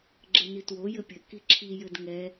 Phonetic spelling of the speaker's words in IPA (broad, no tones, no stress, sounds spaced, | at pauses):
ɡ͡ǁ ɘ n i t w o j ɘ pʲ ɘ k i ǁʰ i j ɘ d ŋ ɛ